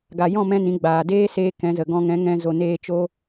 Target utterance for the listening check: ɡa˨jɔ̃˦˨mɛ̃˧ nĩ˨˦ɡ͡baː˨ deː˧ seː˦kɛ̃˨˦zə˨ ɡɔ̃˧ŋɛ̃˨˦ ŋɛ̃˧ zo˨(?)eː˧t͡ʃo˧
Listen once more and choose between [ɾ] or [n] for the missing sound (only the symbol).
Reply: n